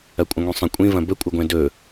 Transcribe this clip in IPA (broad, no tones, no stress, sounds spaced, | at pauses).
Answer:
ɐ kʷʼ ə̃ ŋʷ ĩ sˤ ə̃ kʷʼ ĩ v ɐ̃ b ə kʷʼ ə ɡʷ ɛ̃ d ɵ